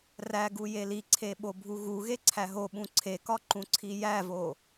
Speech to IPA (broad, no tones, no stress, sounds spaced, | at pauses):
r æ ɡ u j e l i ǀʰ e ɓ o bʱ u ɣ u ɣ e ǀʰ æ ɦ o ɓ ũ ǀʰ e k ɒ ǃ ũ ǀʰ i j æ v o